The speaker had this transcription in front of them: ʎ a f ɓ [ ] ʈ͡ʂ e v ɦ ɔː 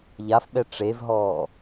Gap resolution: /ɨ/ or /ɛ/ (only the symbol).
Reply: ɛ